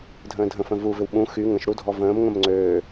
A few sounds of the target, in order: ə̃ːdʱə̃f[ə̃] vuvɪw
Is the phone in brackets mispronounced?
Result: no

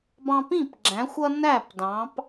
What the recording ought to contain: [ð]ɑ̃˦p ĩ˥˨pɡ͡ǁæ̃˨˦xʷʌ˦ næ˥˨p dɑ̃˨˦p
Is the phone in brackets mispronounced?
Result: yes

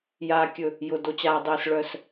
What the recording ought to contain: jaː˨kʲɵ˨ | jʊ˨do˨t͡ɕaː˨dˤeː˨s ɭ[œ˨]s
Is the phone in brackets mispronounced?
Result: no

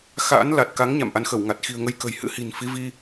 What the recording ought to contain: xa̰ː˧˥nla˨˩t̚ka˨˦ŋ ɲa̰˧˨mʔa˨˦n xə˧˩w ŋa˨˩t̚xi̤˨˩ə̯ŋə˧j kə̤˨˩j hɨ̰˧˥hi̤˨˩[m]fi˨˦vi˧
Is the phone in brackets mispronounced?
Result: yes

